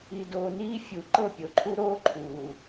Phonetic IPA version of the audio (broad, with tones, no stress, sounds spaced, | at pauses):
i˨ d oː˨ n iː˦ fʲ u˨ ǃ ɤ˦˨ pʲ o˨ ǃʰ u˦ ɾ oː˦ ǃʰ uː˨